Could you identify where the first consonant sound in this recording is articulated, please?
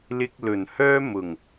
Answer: alveolar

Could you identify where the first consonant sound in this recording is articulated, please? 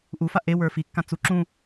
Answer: glottal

